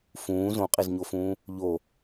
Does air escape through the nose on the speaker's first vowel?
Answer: yes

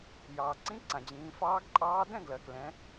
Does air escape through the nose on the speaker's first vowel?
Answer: no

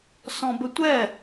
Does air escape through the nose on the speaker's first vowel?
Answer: yes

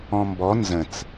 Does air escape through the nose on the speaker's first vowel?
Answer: yes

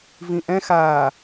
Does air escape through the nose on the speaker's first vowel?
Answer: yes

